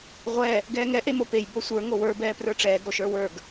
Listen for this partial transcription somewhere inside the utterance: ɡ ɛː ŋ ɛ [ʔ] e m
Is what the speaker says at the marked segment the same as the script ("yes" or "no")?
yes